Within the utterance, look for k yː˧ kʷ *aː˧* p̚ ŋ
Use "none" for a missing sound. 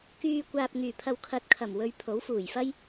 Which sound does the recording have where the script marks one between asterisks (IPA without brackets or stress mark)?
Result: aː˧